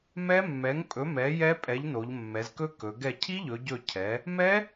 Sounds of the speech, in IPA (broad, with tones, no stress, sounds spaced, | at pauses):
m ɛ˦˥ mː ɛ˨˥ ŋ pʼ ɵ˨˥ m ɛ˨˥ j ɛ˦˥ pʼ ɛ˨˥ ʎ n o˩˧ ʎ mː ɛ˩˧ z k ɵ˦˥ k ɵ˩˧ ɡ ɛ˧˩ cʰ i˦˥ ʎ ɵ˩˧ ɟ ɵ˧˩ cʰ ɛ˩˧ | m ɛ˦˥